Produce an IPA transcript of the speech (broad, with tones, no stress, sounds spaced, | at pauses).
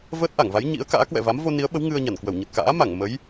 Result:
v əː˦˥ t̚ ʔ a˧˩ ŋ v a˨˦ j ɲ ḭ˧˥ ə̯ k a̰ː˧˥ k w ɛ̰˧˨ v a˨˦ m v o˧ n i˨˦ ə̯ ɓ ə˨˦ w ŋ ɨ˧ ə̯ ɲ a˧˩ n k w ə˧˩ w ɲ ə˨˩ t̚ k a̰ː˧˥ m a˧˩ ŋ m ə˨˦ j